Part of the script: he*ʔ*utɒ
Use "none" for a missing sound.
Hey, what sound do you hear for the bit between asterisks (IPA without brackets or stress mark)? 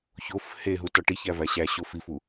ɦ